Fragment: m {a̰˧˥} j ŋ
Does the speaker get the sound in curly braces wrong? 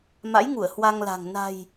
no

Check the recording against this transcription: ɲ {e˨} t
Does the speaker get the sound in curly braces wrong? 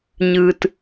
yes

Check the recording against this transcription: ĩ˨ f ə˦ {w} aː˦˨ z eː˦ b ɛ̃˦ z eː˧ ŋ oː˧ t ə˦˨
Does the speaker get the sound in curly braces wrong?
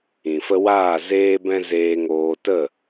no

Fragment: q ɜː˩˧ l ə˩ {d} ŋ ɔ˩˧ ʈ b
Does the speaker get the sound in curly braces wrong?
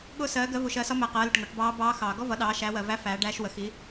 yes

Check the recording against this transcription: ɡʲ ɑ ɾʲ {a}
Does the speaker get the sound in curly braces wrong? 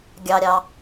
yes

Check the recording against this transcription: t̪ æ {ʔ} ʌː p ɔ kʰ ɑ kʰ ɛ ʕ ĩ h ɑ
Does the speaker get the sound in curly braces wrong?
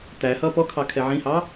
yes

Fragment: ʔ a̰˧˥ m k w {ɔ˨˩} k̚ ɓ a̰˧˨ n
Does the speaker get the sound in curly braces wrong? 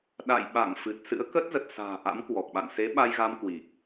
no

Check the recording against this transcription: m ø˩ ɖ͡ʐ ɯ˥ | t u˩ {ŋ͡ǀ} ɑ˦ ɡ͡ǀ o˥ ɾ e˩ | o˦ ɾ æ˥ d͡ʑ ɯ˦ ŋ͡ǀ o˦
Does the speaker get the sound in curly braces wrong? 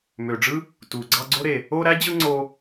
yes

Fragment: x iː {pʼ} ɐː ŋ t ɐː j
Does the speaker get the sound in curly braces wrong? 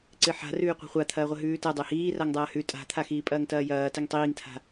no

